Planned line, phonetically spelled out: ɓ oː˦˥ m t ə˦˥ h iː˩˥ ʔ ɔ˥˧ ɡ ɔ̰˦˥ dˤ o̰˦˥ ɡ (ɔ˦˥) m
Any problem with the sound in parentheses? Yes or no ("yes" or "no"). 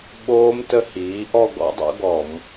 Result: yes